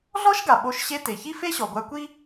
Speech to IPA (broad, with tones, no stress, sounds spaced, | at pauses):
ɮ ɔ˥ ʃ ɡ a˩ ɓ o˧ ʃ ɕ e˧ t e˩ ç i˥ f e˥ ɕ ɔ˩ ɡʷ a˧ kʷ i˥